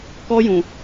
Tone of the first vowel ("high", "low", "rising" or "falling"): high